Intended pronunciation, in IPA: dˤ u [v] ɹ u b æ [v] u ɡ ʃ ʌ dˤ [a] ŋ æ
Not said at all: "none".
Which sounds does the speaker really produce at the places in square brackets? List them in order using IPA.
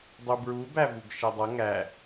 b, v, ʌ

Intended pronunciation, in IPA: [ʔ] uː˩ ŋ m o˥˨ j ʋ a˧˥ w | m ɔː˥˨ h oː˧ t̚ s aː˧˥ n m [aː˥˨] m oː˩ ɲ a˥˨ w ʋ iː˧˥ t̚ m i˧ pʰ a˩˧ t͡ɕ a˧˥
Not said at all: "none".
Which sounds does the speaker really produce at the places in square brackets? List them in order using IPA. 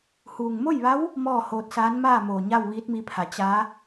h, aː˥˨

